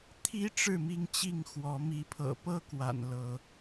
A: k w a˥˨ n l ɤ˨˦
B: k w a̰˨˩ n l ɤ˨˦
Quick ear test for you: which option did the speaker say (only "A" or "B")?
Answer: B